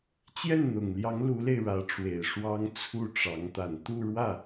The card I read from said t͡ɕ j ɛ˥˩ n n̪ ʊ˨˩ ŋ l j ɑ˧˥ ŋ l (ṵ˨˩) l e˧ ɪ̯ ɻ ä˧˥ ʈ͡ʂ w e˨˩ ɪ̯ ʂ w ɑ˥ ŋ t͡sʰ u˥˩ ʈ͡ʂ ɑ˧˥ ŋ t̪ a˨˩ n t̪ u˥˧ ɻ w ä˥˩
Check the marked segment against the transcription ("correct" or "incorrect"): incorrect